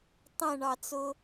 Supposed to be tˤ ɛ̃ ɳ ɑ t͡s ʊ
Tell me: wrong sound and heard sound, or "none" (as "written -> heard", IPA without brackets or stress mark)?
none